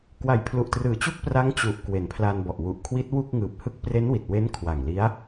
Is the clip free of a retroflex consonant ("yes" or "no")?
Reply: yes